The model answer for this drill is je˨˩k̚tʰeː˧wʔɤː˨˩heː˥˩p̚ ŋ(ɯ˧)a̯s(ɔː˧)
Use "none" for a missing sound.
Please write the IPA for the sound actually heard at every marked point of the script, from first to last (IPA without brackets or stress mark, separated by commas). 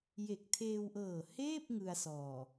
ɯ˧, ɔː˨˩